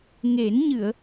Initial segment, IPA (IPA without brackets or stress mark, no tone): ŋ